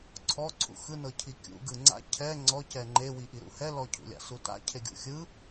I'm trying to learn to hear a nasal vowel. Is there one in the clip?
no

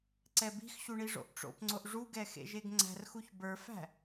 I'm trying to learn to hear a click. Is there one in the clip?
yes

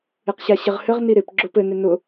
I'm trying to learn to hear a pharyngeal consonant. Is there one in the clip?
no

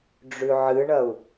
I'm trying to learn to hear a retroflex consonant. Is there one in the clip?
yes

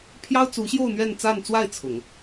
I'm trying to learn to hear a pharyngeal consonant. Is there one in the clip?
no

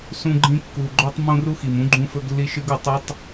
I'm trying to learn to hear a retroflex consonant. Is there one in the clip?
no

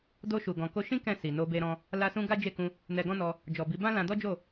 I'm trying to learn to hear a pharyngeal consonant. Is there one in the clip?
no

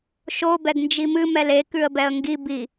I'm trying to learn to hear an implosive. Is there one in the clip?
no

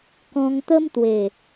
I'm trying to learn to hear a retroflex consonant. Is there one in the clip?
no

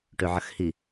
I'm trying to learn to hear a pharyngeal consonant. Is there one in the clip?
yes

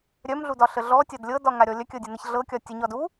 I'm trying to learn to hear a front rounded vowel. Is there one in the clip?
yes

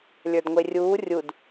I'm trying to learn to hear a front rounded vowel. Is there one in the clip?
no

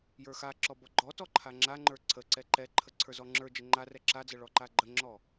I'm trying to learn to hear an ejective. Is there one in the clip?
no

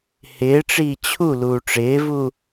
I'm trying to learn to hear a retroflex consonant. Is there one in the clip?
yes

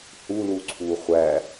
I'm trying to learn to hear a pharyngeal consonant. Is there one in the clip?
no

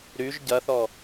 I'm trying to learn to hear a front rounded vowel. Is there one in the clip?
yes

